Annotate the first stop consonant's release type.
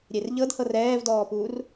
plain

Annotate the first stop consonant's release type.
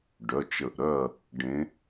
plain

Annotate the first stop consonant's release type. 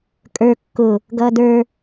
ejective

